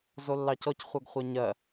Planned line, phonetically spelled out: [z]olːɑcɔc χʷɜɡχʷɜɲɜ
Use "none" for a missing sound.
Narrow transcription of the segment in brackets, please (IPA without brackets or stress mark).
z